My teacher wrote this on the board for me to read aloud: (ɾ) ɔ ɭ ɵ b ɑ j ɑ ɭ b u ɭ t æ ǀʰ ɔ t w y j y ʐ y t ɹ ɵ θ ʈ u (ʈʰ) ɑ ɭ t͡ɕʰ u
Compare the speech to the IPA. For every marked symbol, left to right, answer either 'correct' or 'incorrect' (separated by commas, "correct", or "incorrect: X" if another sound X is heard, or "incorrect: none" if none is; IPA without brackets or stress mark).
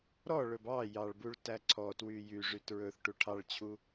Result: correct, correct